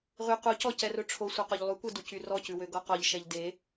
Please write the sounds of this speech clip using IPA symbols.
ʁ y q u c ɔ c ɛ r ɵ ʈ͡ʂʰ o sʷ e q o ʎ lˠ y kʷ ɛ d u c y r ɔ c ʉ w ø ɡ ɔ q ɔ ʎ ʃ ɛ ʎ d e

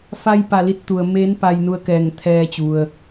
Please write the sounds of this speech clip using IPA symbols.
f a˧ j p a˧˩ l i˧ t̚ t̪ u˩ ə̯ m eː˧˥ n p a˧ j n u˧ ə̯ k ɛː˧˩ ŋ t̪ʰ ɛː˧ t͡ɕ u˩ ə̯

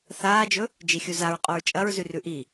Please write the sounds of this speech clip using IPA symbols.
θ aː d͡ʒ ɵ | d͡ʒ i xʲ u z a ɹ qʼ o ɹ t͡ʃʼ ɐ ɹ z ʉ r ʉ ʔ i

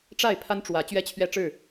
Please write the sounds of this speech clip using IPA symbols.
ʈ͡ʂ a˥˨ ɪ̯ pʰ a˦ n ʈ͡ʂ w ä˨˦ t͡ɕ ɥ ɛ˦ t͡ɕʰ ɥ ɛ˦ ʈ͡ʂ ɻ̩˥˨

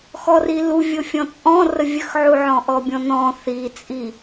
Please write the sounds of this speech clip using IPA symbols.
x ɔ r i l u vʲ o fʲ ɔ̃ t͡sʼ ɔ̃ r ə vʲ ə x ʕ u ʕ ɔ̃ ʔ ɔ bʲ ɔ̃ n ɔ̃ θ i t͡sʼ i

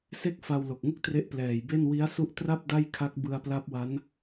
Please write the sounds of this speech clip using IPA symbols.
s e˥˩ k̚ f a˧ w l o˨˩ k̚ ŋ ɯ˥˩ k̚ t r e˦˥ ʔ p l ɛː˨˩ j b e˥˩ n w i˦˥ a̯ s u˦˥ ʔ t r a˥˩ p̚ d a˥˩ j kʰ a˦˥ k̚ b ɯ˧ a̯ p l a˦˥ p̚ w a˦˥ n

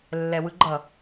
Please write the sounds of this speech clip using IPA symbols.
lː ɛ w ɯ ɡ͡ǃ ʌ

